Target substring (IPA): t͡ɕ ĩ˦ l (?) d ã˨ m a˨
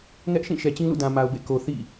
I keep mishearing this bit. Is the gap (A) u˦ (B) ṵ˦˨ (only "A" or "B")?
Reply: B